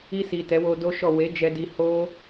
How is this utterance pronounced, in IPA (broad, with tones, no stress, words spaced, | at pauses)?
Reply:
i˧si˨ tɛ˨˦wo˧do˦ʃɔ˦˨ we˨˦d͡ʒɛ˧di˧ ho˦